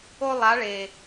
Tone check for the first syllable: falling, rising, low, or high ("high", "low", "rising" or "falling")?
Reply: high